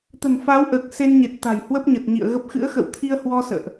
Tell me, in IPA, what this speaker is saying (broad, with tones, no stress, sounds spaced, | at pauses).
t̪ ə̤˨˩ n f a˨˦ w ʔ əː˨˩ k̚ s e˧ n ɲ e˨˩ t̚ t̪ a̤˨˩ j h w ə˦˥ p̚ ɲ ə˨˩ t̚ ɲ ḭ˧˨ ə̯ ɣ ə˦˥ p̚ x ɨ̰˧˥ ə̯ x ə̰˧˨ w t̪ʰ i˧ ə̯ h w ɔ˧ s ə̰ː˧˨ ʔ